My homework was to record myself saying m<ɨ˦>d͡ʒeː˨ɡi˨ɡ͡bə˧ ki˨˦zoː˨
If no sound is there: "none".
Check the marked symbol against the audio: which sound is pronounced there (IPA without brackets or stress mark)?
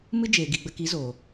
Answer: ɨ˦